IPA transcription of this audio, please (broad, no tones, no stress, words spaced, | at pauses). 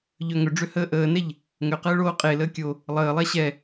ʎœŋʏɖ͡ʐʏ həːʔəːnɛʎ | ŋʏqəː ɭoːqʼeləː kʲo | lˠəːlˠɛ ɕɛ